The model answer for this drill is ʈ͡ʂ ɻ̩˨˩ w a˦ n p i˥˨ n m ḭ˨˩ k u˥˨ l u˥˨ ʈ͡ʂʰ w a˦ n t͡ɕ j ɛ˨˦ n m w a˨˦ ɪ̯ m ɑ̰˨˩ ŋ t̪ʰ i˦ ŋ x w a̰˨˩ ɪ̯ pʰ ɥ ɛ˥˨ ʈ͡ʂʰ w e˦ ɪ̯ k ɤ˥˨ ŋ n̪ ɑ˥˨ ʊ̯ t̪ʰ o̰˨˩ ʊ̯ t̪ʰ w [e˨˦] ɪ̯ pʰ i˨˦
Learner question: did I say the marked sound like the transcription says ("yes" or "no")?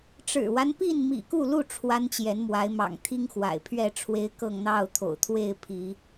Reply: no